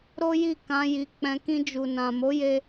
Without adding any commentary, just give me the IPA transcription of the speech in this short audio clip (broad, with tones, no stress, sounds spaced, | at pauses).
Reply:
ɾ o˦ j i˦˨ k ã˧ j i˨ k͡p ɛ̃˧ k ĩ˧ d͡ʒ u˨ n ã˨ m o˨˦ j e˧